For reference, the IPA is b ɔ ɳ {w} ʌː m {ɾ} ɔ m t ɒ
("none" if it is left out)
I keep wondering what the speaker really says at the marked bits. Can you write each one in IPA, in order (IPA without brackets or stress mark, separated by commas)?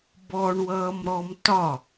w, ɾ